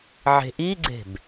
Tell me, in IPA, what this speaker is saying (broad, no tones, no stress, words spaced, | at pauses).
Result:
ʕe̤ʔiɡ͡ǀe̤b